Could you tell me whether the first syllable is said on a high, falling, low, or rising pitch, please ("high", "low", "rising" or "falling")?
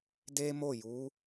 high